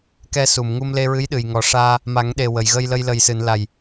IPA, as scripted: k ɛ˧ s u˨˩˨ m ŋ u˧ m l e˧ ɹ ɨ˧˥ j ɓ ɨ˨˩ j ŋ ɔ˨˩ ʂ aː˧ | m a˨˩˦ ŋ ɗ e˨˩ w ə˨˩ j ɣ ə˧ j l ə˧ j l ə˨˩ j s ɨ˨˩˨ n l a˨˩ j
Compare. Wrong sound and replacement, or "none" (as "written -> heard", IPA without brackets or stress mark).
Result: ɓ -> ɗ